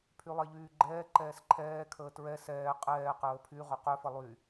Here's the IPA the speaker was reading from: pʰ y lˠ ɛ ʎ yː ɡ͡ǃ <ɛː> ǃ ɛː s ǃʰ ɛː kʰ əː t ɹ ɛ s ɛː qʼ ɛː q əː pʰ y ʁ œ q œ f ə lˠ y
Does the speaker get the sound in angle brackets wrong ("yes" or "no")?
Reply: no